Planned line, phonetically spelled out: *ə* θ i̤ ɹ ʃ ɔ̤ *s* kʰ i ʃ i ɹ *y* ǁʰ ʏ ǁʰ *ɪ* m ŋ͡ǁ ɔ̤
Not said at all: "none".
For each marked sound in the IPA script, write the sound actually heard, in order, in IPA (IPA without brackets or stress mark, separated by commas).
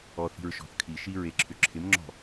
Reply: ɔ, θ, e, ɪ